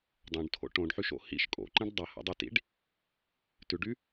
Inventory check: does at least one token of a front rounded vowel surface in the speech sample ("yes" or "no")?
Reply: yes